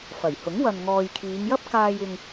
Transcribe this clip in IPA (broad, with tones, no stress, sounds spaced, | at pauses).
f ɐ˨˩ j h ʊ˨˥ ŋ w ɐ˨ n ŋ ɔː˨ j kʰ iː˨˧ ŋ j ɐ˥ p̚ k aː˨ j ɪ˨ ŋ